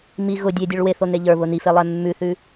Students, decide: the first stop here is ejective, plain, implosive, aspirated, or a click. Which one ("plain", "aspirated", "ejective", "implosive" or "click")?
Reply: plain